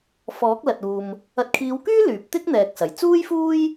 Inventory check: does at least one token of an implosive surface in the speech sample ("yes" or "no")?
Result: no